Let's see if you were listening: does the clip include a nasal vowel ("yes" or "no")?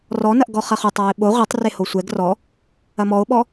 no